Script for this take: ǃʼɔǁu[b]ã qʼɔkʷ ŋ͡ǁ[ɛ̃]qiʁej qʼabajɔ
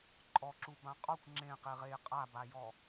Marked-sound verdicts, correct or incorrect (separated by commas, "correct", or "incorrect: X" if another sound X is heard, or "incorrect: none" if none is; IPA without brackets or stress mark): correct, incorrect: ẽ